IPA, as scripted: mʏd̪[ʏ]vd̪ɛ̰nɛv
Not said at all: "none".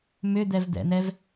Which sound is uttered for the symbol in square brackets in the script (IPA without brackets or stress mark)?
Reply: ɛ